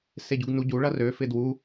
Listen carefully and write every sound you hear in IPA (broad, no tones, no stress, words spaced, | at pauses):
seɟuɡnuɟu ɭɐrø fɪdwu